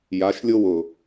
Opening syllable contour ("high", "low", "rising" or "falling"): rising